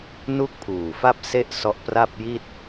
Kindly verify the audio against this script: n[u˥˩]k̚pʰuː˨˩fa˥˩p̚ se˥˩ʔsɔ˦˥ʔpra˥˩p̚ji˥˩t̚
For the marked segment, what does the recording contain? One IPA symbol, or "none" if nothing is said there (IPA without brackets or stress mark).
u˥˩